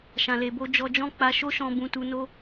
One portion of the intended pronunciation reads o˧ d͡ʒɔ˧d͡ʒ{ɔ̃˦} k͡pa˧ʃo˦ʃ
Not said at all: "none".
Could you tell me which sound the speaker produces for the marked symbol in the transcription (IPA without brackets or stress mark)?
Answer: ɔ̃˦